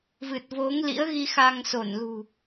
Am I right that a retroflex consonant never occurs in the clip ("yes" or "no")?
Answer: yes